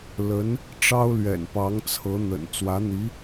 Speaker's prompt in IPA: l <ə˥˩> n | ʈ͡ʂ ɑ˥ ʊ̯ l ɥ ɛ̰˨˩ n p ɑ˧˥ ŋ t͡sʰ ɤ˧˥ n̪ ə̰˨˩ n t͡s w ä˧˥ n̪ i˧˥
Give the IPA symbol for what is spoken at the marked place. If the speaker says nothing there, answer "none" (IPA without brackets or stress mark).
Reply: ə˧˥